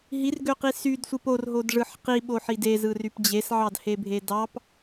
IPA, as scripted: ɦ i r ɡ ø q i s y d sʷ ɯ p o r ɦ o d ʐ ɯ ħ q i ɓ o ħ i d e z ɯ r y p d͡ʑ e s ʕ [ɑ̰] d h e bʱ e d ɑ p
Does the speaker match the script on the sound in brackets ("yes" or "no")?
no